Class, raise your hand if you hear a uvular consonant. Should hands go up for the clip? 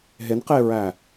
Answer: yes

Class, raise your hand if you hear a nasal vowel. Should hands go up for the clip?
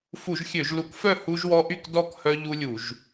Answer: no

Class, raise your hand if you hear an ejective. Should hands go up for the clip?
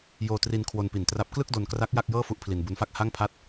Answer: no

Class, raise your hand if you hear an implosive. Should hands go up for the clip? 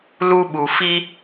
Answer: yes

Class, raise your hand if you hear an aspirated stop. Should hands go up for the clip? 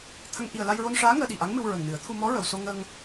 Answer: yes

